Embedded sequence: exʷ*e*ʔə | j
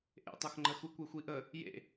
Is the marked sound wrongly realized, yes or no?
yes